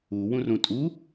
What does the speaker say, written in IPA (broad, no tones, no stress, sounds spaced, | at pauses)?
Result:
u w ũ r ũ tʼ u